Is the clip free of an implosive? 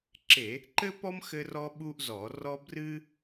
no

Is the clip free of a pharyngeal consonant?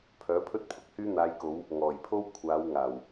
yes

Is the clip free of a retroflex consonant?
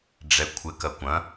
no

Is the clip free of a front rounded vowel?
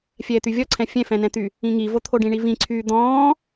no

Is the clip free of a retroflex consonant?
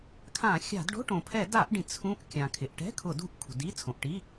no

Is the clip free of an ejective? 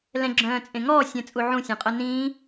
no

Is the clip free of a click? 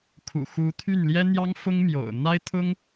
yes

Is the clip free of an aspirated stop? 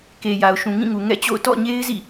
yes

